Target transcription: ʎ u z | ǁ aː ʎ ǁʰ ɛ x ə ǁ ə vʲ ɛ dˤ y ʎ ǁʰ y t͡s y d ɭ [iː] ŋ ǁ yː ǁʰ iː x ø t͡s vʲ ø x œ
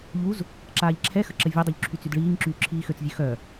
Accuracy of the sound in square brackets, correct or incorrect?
correct